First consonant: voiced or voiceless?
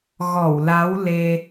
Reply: voiced